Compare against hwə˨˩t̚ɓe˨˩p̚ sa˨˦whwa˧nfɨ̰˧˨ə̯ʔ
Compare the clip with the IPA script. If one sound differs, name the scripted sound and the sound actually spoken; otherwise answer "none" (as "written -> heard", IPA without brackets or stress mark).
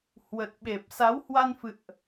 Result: none